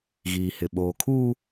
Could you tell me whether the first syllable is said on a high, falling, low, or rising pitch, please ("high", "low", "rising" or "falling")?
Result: low